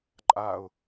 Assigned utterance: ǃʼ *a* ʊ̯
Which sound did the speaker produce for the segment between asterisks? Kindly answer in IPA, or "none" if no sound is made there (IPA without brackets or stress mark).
a